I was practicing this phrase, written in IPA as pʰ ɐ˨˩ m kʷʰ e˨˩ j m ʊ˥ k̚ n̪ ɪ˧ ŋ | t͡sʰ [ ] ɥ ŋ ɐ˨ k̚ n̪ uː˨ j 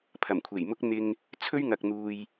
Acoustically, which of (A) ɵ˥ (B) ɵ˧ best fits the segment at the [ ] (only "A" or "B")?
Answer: A